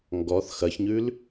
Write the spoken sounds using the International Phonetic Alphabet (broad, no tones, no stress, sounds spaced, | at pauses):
ŋ ɡ ɔ θ x ɐ ç ɲ ʉ l